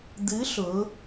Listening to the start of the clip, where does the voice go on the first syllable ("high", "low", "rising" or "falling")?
rising